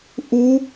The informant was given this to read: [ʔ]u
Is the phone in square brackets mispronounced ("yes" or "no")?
no